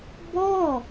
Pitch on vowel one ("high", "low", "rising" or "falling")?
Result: falling